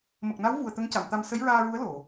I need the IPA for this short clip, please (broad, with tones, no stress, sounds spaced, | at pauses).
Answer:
m ə˨˩ k̚ n a˧˥ w v u˨˩ ə̯ t̪ ə˧˥ ŋ c a˨˩˨ m t̪ a˧ m s ə˧˥ j ɹ aː˧ ɹ u˧˥ ə̯ l o˨˩˨